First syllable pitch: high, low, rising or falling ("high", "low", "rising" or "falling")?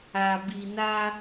low